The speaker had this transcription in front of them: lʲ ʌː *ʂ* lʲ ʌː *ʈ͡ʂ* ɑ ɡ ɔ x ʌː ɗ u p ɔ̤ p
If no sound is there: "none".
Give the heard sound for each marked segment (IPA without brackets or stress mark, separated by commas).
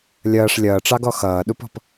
ʂ, ʈ͡ʂ